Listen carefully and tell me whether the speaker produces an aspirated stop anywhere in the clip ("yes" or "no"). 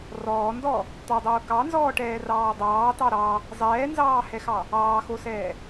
no